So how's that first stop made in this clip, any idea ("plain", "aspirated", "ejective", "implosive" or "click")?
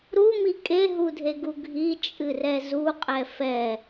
ejective